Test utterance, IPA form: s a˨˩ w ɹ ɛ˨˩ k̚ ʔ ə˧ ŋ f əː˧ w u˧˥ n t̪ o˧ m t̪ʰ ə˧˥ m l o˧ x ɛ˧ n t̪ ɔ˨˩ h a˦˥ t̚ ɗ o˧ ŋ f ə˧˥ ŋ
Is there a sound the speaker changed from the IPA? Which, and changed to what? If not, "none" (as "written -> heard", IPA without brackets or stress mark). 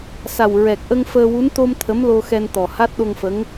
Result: none